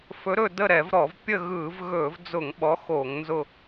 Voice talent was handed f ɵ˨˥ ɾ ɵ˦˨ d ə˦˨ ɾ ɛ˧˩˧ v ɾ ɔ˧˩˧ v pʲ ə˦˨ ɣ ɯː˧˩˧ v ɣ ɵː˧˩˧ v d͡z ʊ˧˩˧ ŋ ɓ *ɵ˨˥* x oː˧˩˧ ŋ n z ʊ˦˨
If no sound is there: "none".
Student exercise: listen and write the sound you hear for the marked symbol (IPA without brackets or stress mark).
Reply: ɔ˨˥